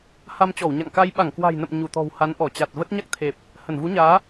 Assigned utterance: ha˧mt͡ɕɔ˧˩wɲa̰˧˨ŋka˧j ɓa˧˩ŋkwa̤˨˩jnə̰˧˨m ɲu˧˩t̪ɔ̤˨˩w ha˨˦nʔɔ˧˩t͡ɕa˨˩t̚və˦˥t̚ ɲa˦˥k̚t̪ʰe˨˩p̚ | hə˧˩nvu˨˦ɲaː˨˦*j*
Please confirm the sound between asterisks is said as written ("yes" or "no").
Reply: no